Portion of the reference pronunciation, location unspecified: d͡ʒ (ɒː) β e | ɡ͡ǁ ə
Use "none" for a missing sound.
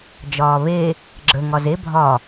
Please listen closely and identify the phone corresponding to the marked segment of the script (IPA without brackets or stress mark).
ɒː